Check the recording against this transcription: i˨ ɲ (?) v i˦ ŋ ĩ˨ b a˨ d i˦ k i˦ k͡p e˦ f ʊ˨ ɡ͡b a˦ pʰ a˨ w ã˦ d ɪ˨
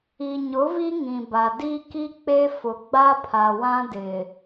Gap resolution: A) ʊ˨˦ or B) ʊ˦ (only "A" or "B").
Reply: A